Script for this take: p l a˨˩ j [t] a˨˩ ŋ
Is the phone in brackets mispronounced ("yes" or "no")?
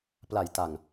no